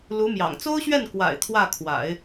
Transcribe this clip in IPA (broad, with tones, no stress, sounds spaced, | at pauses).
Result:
l u˧˥ m j ɑ̰˨˩ ŋ t͡s o˥ ʊ̯ ɕ ɥ ɛ˥˩ n k w a̰˨˩ ɪ̯ t̪ʰ w ä˥˩ kʰ w a̰˨˩˦ ɪ̯